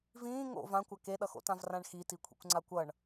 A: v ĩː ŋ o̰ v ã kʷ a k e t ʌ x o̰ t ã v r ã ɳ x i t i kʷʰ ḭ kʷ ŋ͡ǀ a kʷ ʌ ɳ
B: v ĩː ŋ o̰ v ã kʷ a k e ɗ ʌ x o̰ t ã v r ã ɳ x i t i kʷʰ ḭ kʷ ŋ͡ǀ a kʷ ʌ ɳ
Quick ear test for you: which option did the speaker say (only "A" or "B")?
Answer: B